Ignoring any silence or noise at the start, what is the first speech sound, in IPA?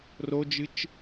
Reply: r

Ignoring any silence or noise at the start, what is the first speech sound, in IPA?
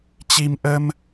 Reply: t͡ɕ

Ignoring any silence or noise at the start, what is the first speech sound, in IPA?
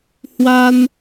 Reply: h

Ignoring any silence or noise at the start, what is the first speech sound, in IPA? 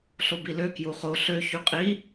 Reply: ɬ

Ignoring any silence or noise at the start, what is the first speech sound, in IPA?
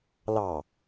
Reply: l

